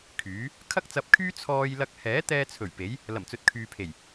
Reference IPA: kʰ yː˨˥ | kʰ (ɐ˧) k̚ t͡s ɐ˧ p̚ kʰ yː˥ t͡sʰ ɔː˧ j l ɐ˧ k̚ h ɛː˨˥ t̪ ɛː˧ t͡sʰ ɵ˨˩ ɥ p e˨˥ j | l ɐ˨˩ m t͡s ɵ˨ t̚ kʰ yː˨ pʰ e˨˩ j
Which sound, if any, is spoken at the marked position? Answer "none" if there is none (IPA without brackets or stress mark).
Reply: ɐ˥